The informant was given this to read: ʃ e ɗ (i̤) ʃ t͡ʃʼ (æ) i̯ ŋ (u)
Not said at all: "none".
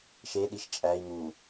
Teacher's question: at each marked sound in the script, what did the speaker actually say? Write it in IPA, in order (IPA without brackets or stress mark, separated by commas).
i, æ, u